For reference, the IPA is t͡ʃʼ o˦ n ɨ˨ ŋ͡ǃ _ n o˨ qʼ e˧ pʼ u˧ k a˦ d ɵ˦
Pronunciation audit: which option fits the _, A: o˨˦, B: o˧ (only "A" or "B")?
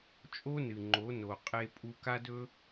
A